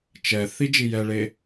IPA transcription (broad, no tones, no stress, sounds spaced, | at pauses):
t͡ʃ ɛ θ i d͡ʒ i j ɛ ɭ e